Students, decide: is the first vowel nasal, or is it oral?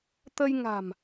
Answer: oral